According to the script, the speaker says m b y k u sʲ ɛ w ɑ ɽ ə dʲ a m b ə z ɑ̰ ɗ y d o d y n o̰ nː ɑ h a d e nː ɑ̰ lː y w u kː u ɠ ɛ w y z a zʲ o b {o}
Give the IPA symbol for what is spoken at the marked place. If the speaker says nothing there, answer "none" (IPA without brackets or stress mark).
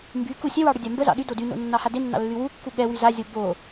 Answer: o